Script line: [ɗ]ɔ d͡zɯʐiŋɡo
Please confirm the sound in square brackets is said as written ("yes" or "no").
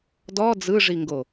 no